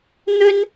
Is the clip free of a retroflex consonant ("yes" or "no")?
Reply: yes